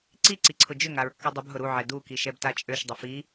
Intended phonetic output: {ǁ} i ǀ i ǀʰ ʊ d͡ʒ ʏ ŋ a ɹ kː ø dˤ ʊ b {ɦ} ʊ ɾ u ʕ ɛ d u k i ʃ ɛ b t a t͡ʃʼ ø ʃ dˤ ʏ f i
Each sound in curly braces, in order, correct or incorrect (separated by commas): incorrect, correct